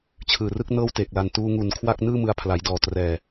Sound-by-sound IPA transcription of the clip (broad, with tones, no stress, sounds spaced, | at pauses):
t͡ɕʰ ɯː˨˩ r ɯ˥˩ k̚ n ɤː˥˩ w t eː˨˩ k̚ l a˨˩ n t uː˧ ŋ u˨˩ n kʰ w a˥˩ k̚ n ɯː˥˩ m ɯ˧ a̯ pʰ l a˩˦ j d ɔː˨˩ t r ɛː˨˩